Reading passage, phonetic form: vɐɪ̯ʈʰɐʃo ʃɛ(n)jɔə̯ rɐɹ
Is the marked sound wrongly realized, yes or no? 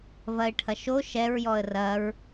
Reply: yes